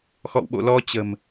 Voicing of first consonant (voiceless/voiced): voiceless